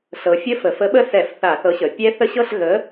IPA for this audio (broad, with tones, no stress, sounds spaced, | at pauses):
ɬ ɤ˩˧ fʲ ə˦˥ f ə˩˧ f ə˨˥ ɓ ə˦˥ s ɛ˧˩˧ f θ a˧˩˧ θ ɤ˨˥ ɕ ə˩˧ pʲ ɛ˦˥ θ ə˦˥ ɕ ɤ˥˧ ɬ ɣ ə˨˥